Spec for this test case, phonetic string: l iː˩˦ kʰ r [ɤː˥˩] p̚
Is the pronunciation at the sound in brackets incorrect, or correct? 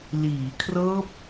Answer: incorrect